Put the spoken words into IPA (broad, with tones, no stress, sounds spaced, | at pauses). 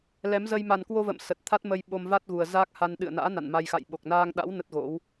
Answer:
l ɛ˨˦ m z ə˧ j m a˨˩ n k w o˧ v ə̰˧˨ m s ə˨˩ t̚ t̪ʰ a˦˥ t̚ m ə˧ j ɓ o˧ m v a˦˥ t̚ ɣ u˨˩ ə̯ z a˦˥ k̚ h a˧ n ɗ ɨ̰˧˨ ə̯ n a̰ː˧˥ n a̰˧˨ n m a˧ j x a̰˧˨ j ɓ o˨˩ k̚ n aː˧ ŋ ɗ a̰˧˥ w n ə˦˥ t̚ ɣ o̰˧˥ w